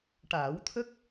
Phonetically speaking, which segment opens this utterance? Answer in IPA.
ʈ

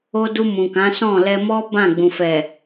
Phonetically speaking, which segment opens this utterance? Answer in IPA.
o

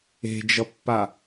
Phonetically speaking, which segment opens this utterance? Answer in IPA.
e̤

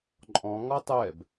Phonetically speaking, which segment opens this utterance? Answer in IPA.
ǃʼ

